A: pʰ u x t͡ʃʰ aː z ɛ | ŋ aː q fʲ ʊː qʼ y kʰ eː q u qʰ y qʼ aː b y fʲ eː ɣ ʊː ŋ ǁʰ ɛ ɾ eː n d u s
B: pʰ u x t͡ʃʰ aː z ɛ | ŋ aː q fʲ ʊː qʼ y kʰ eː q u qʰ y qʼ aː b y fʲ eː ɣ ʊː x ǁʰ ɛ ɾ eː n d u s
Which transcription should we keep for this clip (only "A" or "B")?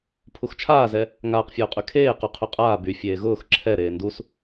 B